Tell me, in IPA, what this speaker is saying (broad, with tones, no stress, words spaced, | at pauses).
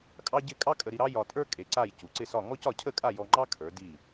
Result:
kʼɑ˥ɟɪ˥˧ kʼɑ˥kʼə˧ɾi˧ ɾɑ˥ jɒ˧tʼə˞˥ kʼe˧ǀa˥˧j cu˩˧ǀɪ˥˧sɒ˥˧ ŋɔ˥cɒ˧cʰə˥˧ kʼa˥˧jɔ˧ŋ͡ǃɑ˥ kʰə˞˩˧ di˧˩